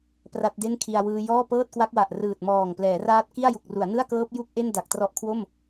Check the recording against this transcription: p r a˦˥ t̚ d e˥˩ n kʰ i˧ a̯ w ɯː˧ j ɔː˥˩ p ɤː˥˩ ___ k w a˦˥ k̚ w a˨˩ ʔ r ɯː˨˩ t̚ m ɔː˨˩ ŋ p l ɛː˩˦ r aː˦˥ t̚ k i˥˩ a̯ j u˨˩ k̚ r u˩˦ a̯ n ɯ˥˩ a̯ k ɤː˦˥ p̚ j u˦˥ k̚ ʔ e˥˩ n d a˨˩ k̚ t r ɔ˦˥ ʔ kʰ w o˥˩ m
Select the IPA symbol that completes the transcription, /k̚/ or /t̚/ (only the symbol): t̚